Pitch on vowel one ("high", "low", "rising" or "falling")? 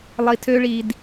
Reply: low